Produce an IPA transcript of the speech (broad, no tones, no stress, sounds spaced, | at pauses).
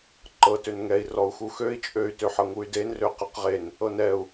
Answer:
ǃ ɤ t ø n ŋ ɛ i̯ r ɔ u̯ x u x ø i̯ t͡ʃʼ ø y̯ t ø ħ ɤ ŋ u y̯ d e n r ø q ɤ q ʁ e n | ɤ n ɛ u̯